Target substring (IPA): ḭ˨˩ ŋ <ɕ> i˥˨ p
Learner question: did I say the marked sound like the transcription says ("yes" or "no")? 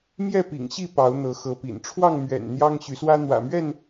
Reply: yes